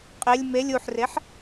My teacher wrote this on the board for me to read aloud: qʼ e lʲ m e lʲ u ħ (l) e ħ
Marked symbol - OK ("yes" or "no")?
no